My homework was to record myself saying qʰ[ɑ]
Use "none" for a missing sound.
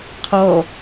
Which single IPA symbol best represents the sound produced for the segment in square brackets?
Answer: ɔ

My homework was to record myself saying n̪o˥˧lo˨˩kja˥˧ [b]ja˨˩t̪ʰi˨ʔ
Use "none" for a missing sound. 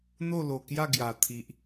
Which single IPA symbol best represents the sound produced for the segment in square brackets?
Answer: ɡ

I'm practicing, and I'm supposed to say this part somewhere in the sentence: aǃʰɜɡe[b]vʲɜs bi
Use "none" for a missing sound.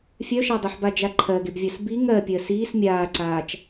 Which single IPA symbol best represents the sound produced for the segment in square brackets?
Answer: b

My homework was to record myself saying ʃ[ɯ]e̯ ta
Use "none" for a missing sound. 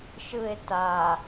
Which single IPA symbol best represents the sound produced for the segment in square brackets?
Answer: ɯ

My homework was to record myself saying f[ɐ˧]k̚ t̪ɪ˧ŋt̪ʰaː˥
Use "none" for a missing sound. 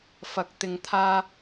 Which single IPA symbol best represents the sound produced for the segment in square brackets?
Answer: ɐ˧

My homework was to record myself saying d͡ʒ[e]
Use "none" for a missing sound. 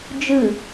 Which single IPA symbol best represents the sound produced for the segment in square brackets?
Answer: ɨ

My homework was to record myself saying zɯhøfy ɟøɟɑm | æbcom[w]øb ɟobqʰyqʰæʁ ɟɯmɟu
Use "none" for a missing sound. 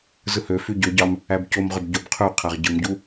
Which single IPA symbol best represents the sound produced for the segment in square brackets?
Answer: ʁ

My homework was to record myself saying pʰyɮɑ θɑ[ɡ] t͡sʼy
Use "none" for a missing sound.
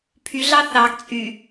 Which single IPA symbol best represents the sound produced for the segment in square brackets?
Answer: ɡ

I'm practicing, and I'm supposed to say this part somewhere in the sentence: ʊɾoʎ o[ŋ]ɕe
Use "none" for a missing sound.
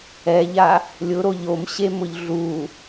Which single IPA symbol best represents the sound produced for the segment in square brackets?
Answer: m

